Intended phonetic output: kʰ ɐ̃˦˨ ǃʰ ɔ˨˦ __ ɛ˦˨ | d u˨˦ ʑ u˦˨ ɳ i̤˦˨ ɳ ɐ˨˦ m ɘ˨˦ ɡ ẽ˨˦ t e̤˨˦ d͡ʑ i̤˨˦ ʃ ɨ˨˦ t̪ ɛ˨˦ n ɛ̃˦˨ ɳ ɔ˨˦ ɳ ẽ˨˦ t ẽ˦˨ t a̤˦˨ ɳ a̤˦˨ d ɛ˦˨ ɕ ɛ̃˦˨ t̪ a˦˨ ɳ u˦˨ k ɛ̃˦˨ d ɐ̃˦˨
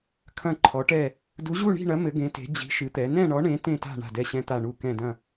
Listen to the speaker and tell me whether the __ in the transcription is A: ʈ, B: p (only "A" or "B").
A